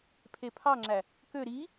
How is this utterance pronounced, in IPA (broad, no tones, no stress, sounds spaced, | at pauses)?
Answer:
pʰ e pʰ ɑ ŋ͡ǁ æ | k ø ɾ i